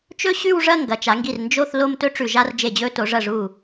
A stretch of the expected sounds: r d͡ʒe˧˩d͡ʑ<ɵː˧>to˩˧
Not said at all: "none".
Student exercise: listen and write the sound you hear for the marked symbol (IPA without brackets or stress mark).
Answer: ɵː˧